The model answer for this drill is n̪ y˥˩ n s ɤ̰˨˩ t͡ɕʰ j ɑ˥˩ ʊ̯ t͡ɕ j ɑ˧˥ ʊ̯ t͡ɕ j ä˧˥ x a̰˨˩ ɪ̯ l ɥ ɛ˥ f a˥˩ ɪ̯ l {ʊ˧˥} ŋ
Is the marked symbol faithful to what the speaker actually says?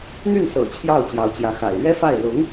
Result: yes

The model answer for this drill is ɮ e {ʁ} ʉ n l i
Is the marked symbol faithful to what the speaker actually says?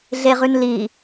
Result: yes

